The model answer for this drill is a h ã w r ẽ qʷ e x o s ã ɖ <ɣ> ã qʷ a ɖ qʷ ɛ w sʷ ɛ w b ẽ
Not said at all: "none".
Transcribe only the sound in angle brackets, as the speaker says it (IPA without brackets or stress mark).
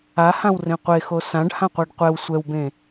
h